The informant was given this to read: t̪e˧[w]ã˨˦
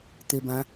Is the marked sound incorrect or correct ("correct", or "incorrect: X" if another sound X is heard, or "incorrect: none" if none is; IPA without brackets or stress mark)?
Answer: incorrect: b